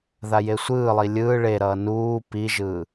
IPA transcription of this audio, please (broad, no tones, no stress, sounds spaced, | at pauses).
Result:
ð a j e sʷ ɯː lˠ i lʲ ɯː ɭ e ɾ ʌː n uː p i ʒ ɯː